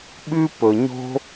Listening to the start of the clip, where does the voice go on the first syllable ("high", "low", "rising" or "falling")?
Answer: high